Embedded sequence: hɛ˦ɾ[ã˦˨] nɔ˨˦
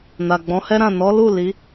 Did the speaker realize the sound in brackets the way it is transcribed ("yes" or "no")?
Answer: yes